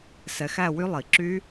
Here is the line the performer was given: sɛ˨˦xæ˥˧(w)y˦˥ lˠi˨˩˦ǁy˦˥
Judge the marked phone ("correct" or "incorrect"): correct